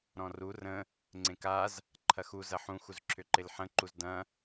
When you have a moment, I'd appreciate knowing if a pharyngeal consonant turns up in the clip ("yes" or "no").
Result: yes